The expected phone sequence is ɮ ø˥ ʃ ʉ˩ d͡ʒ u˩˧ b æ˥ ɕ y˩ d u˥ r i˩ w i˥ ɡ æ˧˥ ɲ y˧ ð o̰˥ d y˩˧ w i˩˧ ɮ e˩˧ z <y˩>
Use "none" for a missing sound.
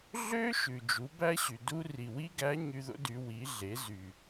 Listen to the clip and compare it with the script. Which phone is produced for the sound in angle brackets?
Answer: y˩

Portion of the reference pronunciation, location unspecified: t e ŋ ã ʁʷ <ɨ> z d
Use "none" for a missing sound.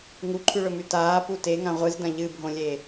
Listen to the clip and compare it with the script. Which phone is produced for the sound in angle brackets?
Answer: ɨ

